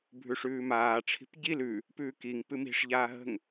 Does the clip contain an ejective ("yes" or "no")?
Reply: no